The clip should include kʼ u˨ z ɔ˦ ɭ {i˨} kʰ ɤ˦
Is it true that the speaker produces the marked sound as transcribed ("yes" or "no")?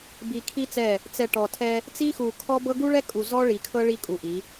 yes